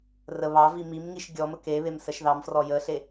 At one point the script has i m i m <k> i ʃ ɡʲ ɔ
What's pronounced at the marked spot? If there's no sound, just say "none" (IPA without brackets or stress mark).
ŋ